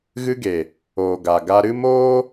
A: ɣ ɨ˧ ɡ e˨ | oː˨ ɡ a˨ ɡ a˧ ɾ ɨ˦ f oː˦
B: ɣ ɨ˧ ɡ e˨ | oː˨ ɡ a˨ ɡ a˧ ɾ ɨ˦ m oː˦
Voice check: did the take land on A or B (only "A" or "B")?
B